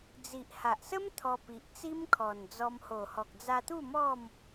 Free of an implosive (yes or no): yes